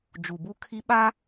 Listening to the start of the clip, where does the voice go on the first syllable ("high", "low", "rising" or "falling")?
low